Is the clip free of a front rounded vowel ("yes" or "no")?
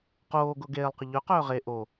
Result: no